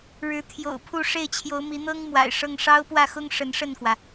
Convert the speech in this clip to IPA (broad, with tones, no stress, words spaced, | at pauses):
ɻɻ̩˧˥t̪ʰjo̰˨˩ʊ̯ pʰu˥˧ʂe˥˩ɪ̯t͡ɕʰjo˧˥ʊ̯ mi˧˥ n̪ɤ˥ŋ mwa̰˨˩ɪ̯ʂɤ˥˩ŋ ʂɑ˥ʊ̯pwä˥˩xʊ˥ŋ ʂə˧˥nʂə˥˩nkwä˩